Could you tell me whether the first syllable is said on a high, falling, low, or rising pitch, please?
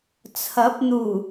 rising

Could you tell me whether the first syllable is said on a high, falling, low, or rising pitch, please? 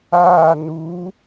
falling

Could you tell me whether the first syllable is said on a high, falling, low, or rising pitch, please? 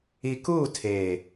low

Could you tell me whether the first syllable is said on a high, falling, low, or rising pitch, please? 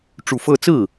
low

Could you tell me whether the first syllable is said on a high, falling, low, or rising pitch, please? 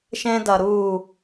high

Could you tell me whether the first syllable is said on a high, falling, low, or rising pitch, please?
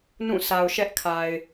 falling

